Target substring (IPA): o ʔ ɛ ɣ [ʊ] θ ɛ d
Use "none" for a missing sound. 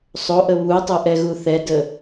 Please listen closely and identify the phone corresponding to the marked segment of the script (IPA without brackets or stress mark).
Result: u